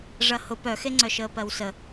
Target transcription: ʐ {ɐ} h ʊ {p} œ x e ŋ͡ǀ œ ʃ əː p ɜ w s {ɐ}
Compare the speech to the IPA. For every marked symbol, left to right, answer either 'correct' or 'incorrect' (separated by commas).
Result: correct, correct, incorrect